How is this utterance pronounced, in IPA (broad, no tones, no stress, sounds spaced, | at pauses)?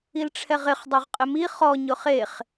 i l ʈ͡ʂʰ ɛ ʁ ɪ χ dˤ o ʁ qʼ ɪ m i χ ɔ ɲ ʊ χ e χ